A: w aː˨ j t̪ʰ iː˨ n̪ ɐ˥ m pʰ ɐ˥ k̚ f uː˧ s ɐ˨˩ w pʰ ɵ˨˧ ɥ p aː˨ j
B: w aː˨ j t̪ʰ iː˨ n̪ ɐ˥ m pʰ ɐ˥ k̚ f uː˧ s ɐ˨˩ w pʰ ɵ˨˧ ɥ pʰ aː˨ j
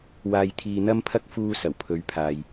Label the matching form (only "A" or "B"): B